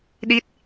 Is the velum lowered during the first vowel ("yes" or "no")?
no